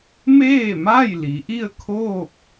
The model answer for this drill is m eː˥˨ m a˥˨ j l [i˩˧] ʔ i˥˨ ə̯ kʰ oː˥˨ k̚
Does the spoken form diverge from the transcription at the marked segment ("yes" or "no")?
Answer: no